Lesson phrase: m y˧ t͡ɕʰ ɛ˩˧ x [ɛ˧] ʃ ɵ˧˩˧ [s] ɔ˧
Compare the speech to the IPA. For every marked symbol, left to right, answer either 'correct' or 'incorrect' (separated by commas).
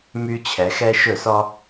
correct, correct